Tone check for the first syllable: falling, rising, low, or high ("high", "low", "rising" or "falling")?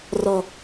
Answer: high